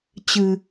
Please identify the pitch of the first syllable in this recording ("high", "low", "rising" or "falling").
low